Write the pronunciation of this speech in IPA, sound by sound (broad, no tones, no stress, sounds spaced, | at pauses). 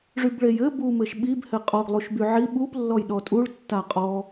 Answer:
ʐ y b ɭ e j ɘ b u m ɘ ʃ ɓ i b h ɘ qʼ ɔ ɡ lˠ u ʃ b y ʕ i ɓ u p lː ɔ j ɗ ɔ tʼ u ɭ tː a qʼ ɔ